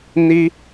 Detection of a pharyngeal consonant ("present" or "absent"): absent